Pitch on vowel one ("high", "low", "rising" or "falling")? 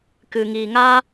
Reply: low